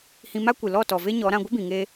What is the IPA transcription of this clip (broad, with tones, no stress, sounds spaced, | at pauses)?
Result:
h ĩ˧ m a˦ kʷ ɨ˨ l ɔ˦˨ t ɔ˨ v e˦ ɲ ɔ˨˦ ɾ ã˧ ɡʷ ə˦ b ĩ˨ ŋ eː˧